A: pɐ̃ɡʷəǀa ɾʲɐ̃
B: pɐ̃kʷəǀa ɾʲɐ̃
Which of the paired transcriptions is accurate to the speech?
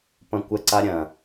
B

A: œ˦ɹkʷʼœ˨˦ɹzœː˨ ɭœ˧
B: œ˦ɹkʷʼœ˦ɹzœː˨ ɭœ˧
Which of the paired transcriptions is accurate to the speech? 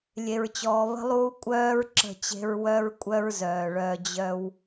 B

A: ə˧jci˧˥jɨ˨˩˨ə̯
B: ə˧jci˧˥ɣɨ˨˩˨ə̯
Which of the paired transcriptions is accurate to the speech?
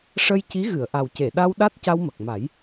B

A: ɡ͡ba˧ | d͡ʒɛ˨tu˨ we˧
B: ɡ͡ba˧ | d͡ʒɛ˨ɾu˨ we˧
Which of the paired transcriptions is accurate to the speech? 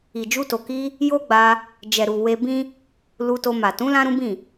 B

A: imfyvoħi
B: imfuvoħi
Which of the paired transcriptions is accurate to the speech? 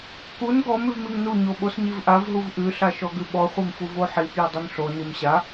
B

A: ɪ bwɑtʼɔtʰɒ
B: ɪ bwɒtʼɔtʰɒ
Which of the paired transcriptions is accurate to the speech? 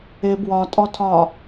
B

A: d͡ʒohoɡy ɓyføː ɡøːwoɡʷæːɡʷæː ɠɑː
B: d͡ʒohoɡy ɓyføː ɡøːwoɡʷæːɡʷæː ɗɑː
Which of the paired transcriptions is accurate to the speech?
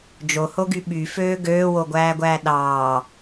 B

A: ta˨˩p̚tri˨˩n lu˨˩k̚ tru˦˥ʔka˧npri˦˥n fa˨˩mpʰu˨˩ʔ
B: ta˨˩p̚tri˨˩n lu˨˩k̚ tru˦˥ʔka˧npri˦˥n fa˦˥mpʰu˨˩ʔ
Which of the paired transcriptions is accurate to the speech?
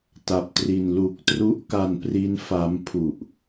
B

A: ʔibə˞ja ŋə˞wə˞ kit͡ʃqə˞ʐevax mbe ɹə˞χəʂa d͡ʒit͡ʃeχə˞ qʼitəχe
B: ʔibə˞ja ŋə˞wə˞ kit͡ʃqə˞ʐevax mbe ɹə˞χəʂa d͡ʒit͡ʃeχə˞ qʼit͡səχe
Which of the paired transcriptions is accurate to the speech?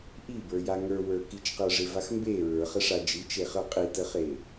A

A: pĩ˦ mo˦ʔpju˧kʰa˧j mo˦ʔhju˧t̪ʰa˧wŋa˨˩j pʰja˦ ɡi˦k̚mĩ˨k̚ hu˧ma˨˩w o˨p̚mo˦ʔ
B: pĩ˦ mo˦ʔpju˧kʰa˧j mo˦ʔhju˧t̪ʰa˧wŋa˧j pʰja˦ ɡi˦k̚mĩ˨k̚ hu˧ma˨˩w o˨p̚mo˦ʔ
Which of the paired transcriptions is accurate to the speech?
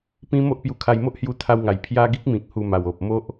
A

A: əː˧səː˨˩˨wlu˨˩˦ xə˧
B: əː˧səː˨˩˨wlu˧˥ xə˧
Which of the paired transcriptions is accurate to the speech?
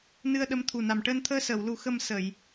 A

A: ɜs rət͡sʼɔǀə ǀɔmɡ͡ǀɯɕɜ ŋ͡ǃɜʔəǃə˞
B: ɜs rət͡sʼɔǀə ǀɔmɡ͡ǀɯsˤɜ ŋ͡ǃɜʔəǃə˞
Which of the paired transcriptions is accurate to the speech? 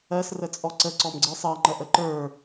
B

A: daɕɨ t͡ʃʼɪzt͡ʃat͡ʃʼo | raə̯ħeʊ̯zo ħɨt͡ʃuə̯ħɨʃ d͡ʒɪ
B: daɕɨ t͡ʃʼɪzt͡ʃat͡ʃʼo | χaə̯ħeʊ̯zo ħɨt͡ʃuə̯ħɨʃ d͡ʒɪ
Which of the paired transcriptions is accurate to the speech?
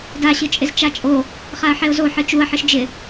B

